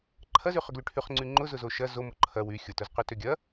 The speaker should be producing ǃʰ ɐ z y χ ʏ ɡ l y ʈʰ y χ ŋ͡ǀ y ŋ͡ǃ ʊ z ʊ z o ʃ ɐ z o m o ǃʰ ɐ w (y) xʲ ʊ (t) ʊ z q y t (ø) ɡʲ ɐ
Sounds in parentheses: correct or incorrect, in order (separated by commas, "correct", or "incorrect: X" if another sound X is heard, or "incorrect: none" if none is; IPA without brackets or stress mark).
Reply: correct, correct, correct